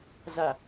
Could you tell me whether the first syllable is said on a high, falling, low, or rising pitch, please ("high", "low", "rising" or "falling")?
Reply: low